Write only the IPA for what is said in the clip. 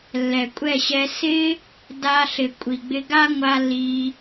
lːɛ˨kʷʼɛ˦˨ɕɛ˧ sɪ˧ | da˧ɬɪ˨ kʷʼi˨ɡ͡bɪ˧ɡa˦ ŋʷa˧ lːi˧

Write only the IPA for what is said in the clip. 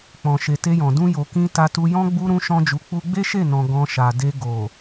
k͡pɔ̃˨ʃe˨te˧jɔ̃˨ dũ˧jo˨ kĩ˧ ta˧tu˧ jɔ̃˦ ɡ͡bu˦ ɾũ˦ʃɔ̃˦d͡ʒu˧ k͡pu˧ɡ͡be˦ʃe˦˨nɔ̃˨ ɡɔ̃˧ ʃa˨de˧ ɡo˨

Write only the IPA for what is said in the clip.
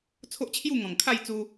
t͡sʰo˦ʔt͡ɕʰju˥˧ŋɔ̃˨˩ŋ kʰa˥˧jt͡su˧

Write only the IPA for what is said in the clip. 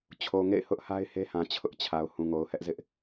t͡ɕʰo˨ŋḛ˦˨ɪ̯ hʊ˦ʔha˦ɪ̯he˦hã˨ t͡ɕʰʊ˦ʔt͡ɕʰa˨ʊ̯ hũ˨ŋo˨ʊ̯hɛ˦ʔzɪ˦ʔ

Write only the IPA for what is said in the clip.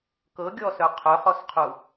kɤɡʲɔsœ qʰœχɔsqʰu

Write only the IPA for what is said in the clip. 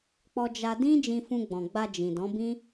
k͡pɔ˧d͡ʒa˧dĩ˦ d͡ʒĩ˧fũ˧ɡ͡bɔ̃˨ɡ͡ba˧ d͡ʒĩ˨dɔ̃˨˦bĩ˦

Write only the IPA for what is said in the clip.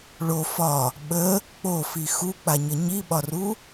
ɭo fɒ | ɓə | k͡pofi xuk͡paɲə ɲiɓɒru

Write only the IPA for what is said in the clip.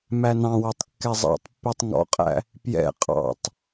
mænɑ̃wætˤ kːɛzˤɑ̰tˤpːitˤ ŋɔ̰qʼæ̰ | pjɛ̰ qʼɑ̰tˤ

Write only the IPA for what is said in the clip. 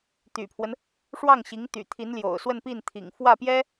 t̪y̰˨˩pʰwə˦n | ʂwɑ˥˩ŋɕi˧˥ŋt̪y̰˨˩ t̪ʰi˧˥nljo̰˨˩ʊ̯swə˥˧npi˥˩n t̪ʰḭ˨˩ŋfwä˥˩pjɛ˥

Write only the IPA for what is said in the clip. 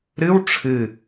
ɾɨw ʈ͡ʂʰɨ

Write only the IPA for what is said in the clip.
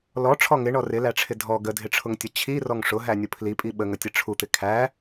lɔʈ͡ʂʰɔ ŋɪɳɔ rɪlæʈ͡ʂʰɪ dʱɔ ɡədʱɪʈ͡ʂʰʊŋtʲə t͡ɕʰirɔŋ ʂʊɦænʲʊ pʰlipʼi ɓəŋətʲə ʈ͡ʂʰut̪ɪ kʰæ

